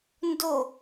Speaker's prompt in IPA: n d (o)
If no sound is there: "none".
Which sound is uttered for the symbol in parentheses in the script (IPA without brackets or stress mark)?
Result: o